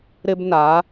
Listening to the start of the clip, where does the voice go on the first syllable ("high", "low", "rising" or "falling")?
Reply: high